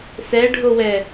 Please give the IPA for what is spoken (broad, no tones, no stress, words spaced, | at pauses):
sɛɖʱowɛ